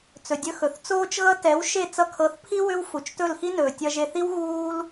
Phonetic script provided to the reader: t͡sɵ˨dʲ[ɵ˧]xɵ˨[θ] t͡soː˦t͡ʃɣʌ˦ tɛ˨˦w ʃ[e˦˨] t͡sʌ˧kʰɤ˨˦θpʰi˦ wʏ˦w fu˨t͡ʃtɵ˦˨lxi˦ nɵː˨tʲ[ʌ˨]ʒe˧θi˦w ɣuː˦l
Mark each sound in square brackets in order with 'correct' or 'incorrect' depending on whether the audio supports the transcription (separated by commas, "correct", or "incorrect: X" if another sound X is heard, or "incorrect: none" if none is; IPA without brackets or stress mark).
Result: correct, correct, correct, incorrect: ʌ˧